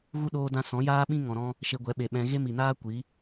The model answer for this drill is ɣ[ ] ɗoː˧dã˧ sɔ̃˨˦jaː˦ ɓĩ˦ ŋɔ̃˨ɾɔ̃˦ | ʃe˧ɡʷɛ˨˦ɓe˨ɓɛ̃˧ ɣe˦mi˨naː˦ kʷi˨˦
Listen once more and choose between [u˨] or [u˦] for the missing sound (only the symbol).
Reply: u˦